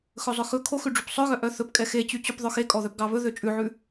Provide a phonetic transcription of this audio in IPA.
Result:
x ɵ zˤ œ x ɵ kʰ o x ʉ ɖ͡ʐ y p sˤ œ ɣ œ ʔ œ θ ɵ p kʼ ɛ x e t͡ɕ y t͡ɕ ʉ p ðˤ œ x e kʼ ɔ ð œ p ɡ ɑ β ɵ ð ø t͡ʃʼ ʉ ʕ ʉ

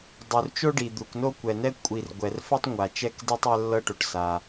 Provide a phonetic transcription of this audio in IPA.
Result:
dˤ u˩ r t͡ʃ o˥ ɖ i˩ d̪ u˩ k n o˥ kʷ ɛ˩ n ɛ˥ kʷʼ i˩ r ɡʷ ɛ˩ r f ɛ˥ tˤ ŋʷ a˩ t͡ʃ ɛ˥ k d e˥ tˤ ɛ˥ lː ɤ˥ ʈ o˩ ʈ s a˩

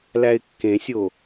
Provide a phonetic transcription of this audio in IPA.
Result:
l æ ɪ̯ kː ẽ sʲ o

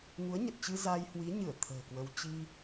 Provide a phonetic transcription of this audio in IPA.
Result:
ŋ u˨˦ ə̯ ɲ ə˨˩ t̚ t͡ɕ ɨ˧ z a˧ j h w i˨˦ ɲ ɨ˧˩ ə̯ t̪ʰ ə̤ː˨˩ k w ə˧ w t͡ɕ i˧

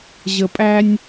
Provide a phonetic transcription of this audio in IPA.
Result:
ʑ ə˨ pʼ æ˧ nʲ

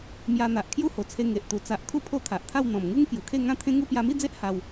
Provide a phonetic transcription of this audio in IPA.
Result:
m j a˧ n̪ a˨ ʔ kʰ j u˥˧ h o˨˩ t͡sʰ e˧ ŋ e˨ ʔ t̪ u˨˩ t͡s a˨ ʔ kʰ u˦ pʰ o˦ t̪ʰ a˨ ʔ t̪ʰ a˥˧ w n̪ ɔ̃˨˩ m ŋ u˦ ŋ k j u˨˩ kʰ e˥˧ ŋ ã˥˧ t̪ʰ ẽ˦ ŋ u˦ p j a˧ m i˥˧ d͡z e˦ ʔ h a˧ w

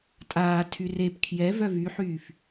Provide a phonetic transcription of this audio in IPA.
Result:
tʼ aː tʰ y r e p kʰ j ɛ v œ v y ħ yː f

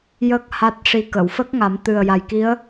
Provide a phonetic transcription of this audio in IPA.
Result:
j ə˦˥ k̚ h a˦˥ t̚ ʂ i˧ k ə˨˩˨ w f ə˦˥ k̚ ŋ a˨˩˦ m t̪ ɨ˨˩ ə̯ j a˨˩ j k i˧˥ ə̯

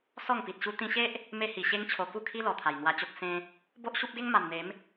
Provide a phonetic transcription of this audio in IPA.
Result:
s ɔ˥˧ ŋ p i˨ t̚ ɕ u˦ t̪ ĩ˧ ɕ e˦ ʔ | m e˦ h i˨˩ ɕ e˦ ŋ t͡ɕʰ o˧ k u˥˧ kʰ i˦ l ɔ˨˩ t̪ʰ a˨˩ j n̪ w a˧ t͡ɕ o˦ k̚ s ẽ˦ | b o˦ ʔ ɕ u˦ p̚ ɡ e˦ ŋ m a˨˩ m n̪ e˨˦ m

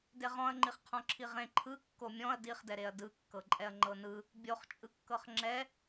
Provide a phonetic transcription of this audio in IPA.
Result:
d e ʁ ɔ̃ ɐ̯ ŋ͡ǃ i χ qʰ ɔ̃ ǁʰ i ʁ ẽ ǃʰ ɯ kː o mʲ ɔ̃ ɐ̯ d i χ d ɛ ɾ e ɐ̯ d ɯ kː ɤ ǃʼ ɛ ɐ̯ ŋ͡ǃ ɤ n ɯ | bʲ o χ t͡ʃʼ ɯ kː ɤ χ ŋ͡ǁ ɛ

